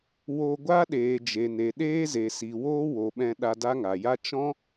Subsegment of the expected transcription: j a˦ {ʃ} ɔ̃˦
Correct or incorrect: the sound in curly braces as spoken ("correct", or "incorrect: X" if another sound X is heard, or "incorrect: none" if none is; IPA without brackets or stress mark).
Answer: incorrect: t͡ʃ